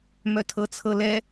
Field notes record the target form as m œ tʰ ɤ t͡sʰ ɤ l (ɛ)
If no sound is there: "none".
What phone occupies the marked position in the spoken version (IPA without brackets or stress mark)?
ɛ